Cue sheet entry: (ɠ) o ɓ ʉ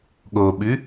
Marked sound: correct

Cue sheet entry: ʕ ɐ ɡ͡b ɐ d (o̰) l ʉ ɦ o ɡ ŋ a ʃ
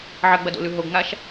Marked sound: correct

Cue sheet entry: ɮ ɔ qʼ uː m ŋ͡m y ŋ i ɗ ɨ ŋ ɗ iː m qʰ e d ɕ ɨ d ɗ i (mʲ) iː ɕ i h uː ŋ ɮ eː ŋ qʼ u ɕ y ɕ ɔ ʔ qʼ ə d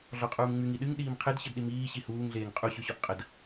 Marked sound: incorrect: m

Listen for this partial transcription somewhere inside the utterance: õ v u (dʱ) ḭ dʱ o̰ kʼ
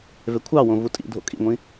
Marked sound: incorrect: tʼ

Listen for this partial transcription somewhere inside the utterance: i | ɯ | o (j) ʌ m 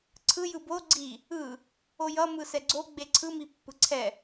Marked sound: correct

